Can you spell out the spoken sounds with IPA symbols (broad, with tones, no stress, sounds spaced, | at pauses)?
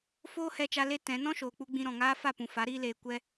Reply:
f oː˦ h ɛ˧ t͡ʃ a˧ l e˦ t ɛ̃˨˦ n ɔ̃˦ ʃ oː˨ k͡p u˧ ɡ͡b ĩ˧ ɾ ɔ̃˨ ŋ aː˦ f a˦˨ p ũ˨ f a˨˦ ɾ iː˦ l eː˧ kʷ ɛ˦